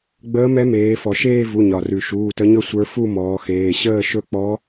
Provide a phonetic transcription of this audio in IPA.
ɡ͡bəː˧˥mɛ˧˥ meː˩˧fɔ˩ʃeː˥˧ vu˩˧˩ ɲɒ˩rʉ˩ʃuː˩˧˩ tə˧˥ɲɵ˥˧ sʷə˞˧˥ fu˥˧mɔː˩˧xeː˩˧˩ ɕəː˥˧ʃɵ˥˧ k͡pɔ˧˥

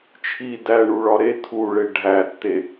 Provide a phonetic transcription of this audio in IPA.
t͡ʃʰi dæɳuɭɒ ɾe tʰuɭe ɖʱætːe

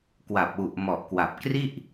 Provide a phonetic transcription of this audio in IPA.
kwa˨˩p̚wu˨˩ʔmɔ˨˩ʔkwa˨˩p̚ kri˥˩ʔ

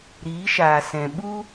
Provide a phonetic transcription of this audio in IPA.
ɾiː˨˦ʃaː˨sɛ̃˨ ɓu˦

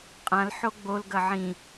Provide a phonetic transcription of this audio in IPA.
qʼãl ħoɡ͡bolɡɐ ʕĩ

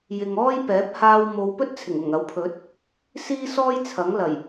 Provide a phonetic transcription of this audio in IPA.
jɪ˨ŋɔː˥jpɛː˨˥p̚ haː˧w mo˨˧wpɵ˥t̚t͡sʰɪ˨˩ŋ ʊ˨˩ŋɐ˨˥wpʰɵ˨˥t̚ | siː˥sɔː˥j t͡sʰɐ˨˥ŋlɐ˨˩j

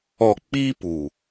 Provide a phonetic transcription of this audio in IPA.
ɔ˨k͡piː˦ pu˨

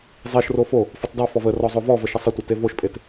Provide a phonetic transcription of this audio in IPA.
zˤiʃro fo | fɘtˤdɑfɔv ə rɔzˤovɔvə ʃəsˤɘtʷɘ tevoʃpʼet

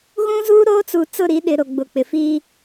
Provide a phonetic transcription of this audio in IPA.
ɣũ˦zuː˦ ɾoː˦t͡su˨ t͡sʊ˦˨ɾi˨˦ ɗɪ˨ ɾo˨ ɡ͡bʊ˨k͡pɪ˨ fi˦

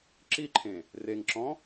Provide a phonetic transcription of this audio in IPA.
ǁiǃʰẽ | reŋǁɔ̃

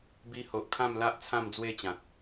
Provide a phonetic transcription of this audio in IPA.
bi˧ho˨ʔkʰã˥˧mla˦ʔ t͡sʰã˥˧md͡zwe˥˧t͡ɕã˨t̚

